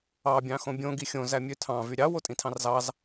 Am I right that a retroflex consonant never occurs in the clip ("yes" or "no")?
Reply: yes